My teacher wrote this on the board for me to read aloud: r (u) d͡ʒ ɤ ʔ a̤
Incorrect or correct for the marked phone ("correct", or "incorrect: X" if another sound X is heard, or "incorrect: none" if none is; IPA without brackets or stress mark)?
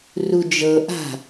correct